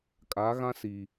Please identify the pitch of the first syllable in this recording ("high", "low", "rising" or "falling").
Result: rising